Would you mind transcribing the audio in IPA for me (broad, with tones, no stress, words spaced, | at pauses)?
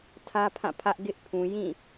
tʰä˦pʰã˦˨ pʰä˦ʔ ɡɪ˦ʔ pʰũ˨ jĩ˦˨